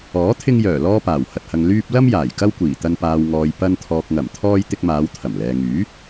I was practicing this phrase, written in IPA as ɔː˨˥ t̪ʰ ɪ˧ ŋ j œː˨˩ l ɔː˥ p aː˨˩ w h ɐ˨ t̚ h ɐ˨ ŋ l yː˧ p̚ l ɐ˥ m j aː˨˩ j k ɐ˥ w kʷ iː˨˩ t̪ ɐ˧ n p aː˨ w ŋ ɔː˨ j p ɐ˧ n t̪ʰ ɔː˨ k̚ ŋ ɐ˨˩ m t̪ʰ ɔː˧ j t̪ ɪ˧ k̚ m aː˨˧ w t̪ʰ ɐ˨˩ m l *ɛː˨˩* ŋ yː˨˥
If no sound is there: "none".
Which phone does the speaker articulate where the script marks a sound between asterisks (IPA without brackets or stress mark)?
ɛː˨